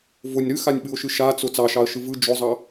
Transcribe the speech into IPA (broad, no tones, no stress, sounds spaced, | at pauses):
v ʊ nʲ ɾ ɨ x a nʲ ɓ ɨ ʊ̯ ʃ ɨ ʃ a t͡s ʊ t͡s ɑ ʃ ɑ ə̯ ʃ ɯ v ɯ d͡ʒ ʊ zˤ ɑ